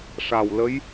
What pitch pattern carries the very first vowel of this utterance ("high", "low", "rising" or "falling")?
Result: low